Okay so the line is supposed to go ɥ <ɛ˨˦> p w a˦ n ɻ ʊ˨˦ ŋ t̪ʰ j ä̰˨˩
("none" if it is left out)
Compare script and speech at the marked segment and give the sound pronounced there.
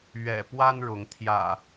ɛ̰˨˩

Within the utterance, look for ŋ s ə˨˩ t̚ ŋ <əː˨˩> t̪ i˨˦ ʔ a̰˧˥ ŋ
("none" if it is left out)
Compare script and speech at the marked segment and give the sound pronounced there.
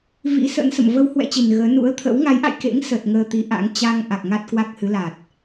əː˧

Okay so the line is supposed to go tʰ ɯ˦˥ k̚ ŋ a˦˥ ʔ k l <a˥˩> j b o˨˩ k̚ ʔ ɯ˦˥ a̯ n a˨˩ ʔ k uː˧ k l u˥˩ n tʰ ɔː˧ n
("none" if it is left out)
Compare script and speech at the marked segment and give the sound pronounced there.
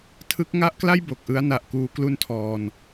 a˥˩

